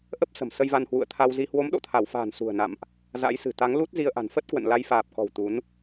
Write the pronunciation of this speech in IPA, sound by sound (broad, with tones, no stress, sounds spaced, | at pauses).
ʔ ə˦˥ p̚ s ə̤˨˩ m s ə˧ j v a˧ n h w ṵ˧˨ ə̯ t̪ʰ a˧ w z i˧ h w o˨˦ m ɗ o̰˧˨ t̪ʰ a˧˩ w f a̤ː˨˩ n s ṳ˨˩ ə̯ n a̰˧˨ m ʔ | z a̰˧˥ j s ɨ̤˨˩ t̪ a˨˦ ŋ l u˦˥ t̚ z i˧ ə̯ ʔ a̤˨˩ n f ə˦˥ t̚ k w ə̰˧˨ n l a˨˦ j f aː˨˩ p̚ k ɔ̤˨˩ w t̪ u˨˦ n